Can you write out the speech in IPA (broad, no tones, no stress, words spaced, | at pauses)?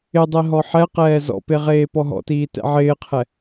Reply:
ɪ dˤeɦɔħɛqɛː zɔ̰pe ʁeːpɔɦɔ̰tiː tɛ̰ʕɪːqʰɛ